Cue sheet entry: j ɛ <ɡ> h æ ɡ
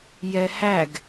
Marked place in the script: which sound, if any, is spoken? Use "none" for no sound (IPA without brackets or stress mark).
none